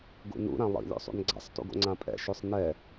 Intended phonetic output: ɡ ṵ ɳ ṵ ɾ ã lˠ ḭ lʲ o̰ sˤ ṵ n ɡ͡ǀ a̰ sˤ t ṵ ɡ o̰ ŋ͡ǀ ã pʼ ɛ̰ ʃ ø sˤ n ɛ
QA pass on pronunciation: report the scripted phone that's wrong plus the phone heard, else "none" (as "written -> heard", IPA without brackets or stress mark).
ɳ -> n